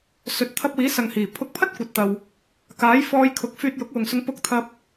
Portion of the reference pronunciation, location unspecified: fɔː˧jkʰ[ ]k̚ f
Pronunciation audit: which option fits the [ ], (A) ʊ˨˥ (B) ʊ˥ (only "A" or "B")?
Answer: A